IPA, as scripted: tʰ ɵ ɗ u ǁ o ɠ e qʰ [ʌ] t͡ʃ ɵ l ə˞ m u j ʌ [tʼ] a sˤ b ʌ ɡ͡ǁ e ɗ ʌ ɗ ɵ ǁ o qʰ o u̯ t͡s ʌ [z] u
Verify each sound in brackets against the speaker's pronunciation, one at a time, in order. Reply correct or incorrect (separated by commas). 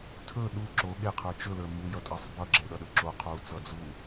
incorrect, correct, incorrect